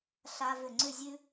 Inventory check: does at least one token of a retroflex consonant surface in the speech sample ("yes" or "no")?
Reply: no